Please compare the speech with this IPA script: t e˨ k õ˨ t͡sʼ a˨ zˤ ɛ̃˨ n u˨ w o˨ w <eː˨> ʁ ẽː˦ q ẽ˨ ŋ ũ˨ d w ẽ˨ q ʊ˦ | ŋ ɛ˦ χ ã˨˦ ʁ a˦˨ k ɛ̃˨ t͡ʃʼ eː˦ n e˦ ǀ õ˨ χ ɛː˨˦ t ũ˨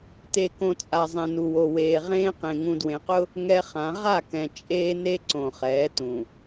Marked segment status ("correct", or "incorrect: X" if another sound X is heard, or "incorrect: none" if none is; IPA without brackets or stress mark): correct